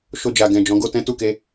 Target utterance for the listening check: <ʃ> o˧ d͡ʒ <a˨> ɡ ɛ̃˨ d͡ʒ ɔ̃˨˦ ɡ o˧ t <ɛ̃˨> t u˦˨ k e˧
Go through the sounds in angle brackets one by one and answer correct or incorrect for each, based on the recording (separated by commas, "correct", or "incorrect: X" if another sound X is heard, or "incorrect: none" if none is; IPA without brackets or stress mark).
correct, correct, incorrect: ɛ̃˦